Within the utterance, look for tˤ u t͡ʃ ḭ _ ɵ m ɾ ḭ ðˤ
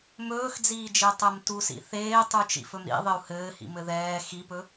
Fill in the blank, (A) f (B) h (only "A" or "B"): A